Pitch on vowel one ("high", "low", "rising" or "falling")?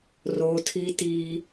low